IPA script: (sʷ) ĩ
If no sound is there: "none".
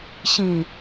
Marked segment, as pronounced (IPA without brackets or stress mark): ɕ